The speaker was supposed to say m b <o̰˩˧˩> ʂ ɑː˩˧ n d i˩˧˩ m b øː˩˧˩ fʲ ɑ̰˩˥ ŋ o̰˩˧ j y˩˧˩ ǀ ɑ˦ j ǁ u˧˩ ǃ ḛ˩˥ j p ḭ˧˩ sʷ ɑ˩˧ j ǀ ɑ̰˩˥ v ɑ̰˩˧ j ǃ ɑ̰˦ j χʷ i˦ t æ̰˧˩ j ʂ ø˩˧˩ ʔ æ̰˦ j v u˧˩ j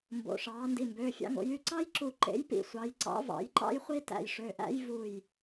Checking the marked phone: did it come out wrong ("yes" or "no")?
no